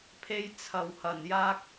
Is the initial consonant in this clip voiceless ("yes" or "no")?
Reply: yes